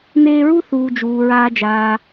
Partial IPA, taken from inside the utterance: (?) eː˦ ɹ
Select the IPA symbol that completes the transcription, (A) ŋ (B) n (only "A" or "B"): B